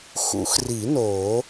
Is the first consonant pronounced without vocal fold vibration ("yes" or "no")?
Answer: yes